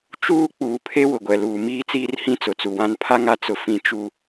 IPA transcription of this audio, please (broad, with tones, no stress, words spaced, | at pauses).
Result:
t͡ʃuː˦ k͡puː˨pʰe˦ wʊ˨ɡʷɛ˨luː˨ miː˦t͡siː˦rhĩ˦ t͡sʊ˨t͡su˨wã˦n pʰa˦ŋa˨t͡sʊ˨ fĩ˨t͡ʃu˨